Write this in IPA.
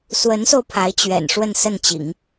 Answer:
swə˧˥nso˧ʊ̯ pʰa˧˥ɪ̯t͡ɕɥɛ̰˨˩nʂwə˥˧n sə˥˩nt͡ɕḭ˨˩˦ŋ

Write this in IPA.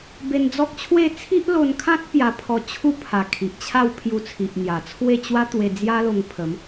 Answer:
be˧nd͡zɔ˦k̚t͡ɕʰwe˥˧ t͡sʰi˦ʔlo˧nkʰã˦t̚ pja˧pʰɔ˧t͡ɕʰu˥˧ pʰa˨˩ kʰi˨ʔt͡ɕʰa˥˧w pʰju˧t͡sʰi˨ʔn̪ja˨˩t͡sʰwe˥˧ t͡ɕwa˦t̪we˧ d͡zja˦lo˧ŋpʰə˨˦m

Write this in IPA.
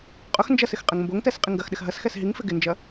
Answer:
qʼʊx nd͡ʒɐsɪx qʼɛŋmboŋtɛs qʼiŋɡɐxɗɪx ɦɐsxɛs ɦiŋfɪ ɡɪnd͡ʒɐ

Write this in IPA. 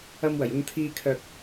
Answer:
ɐ˧mwɐ˨˩j ʊ˨ŋt̪ʰiː˨kʰœː˨k̚

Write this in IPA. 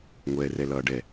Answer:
ŋʷɛːrɛlʌːɖɛ

